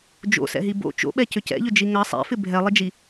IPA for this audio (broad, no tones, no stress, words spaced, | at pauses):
d͡ʒo̰sɛ̰ɦi bo̰ t͡ʃo̰ɓɛ cʏcɛ̰ʎʏd͡ʒi ŋɐ sˤɛ̰fɪ bʱɛlˠɪd͡ʒi